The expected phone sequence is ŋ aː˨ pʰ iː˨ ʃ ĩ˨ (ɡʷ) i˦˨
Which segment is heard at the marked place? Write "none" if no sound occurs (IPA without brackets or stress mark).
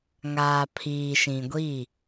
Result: ɡʷ